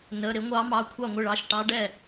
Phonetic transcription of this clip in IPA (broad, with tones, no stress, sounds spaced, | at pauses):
n ə˩˧˩ ɾ ɪ˧˥ ŋʷ ɑ˧˥ m ɑ˩˧˩ kʷʰ ɑ˥˩ ŋʷ ɪ˥˩ ɭ ɑ˩˧˩ ʃ ʈ ɑ˧˥ ɖ ɛ˥˩